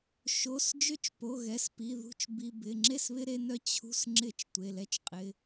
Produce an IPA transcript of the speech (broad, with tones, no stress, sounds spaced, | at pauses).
ʃ o˩˧˩ s d͡ʒ ø˦ t͡ʃ p o˩˧˩ ɣ ɛ˩˧˩ s p i˩˧˩ ð ṳ˦ t͡ʃ b i˩˧˩ b ɪ˩˧˩ ŋ͡ǁ e˥˩ s β ɪ˦ ɾ e˦ n œ˦ t͡ɕʰ ṳ˦ s ŋ͡ǁ ɪ˥˩ t͡ʃ tʷ e˩˧˩ l ɛ˦ t͡ʃ qʼ ɪ˩˧˩